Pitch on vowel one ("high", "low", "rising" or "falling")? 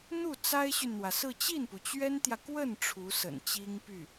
falling